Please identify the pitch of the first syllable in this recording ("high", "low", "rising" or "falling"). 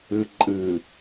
low